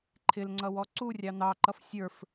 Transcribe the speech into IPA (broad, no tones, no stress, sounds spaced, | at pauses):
ǃʰ ɪ l ŋ͡ǀ ʌ w ɔ ǀ u rʲ ɑ n̪ ɑ ǃ ʌ f sʲ ə˞ f